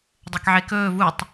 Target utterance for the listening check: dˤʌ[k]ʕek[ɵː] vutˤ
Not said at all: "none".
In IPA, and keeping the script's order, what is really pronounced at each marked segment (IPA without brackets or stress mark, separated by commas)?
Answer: k, ɵː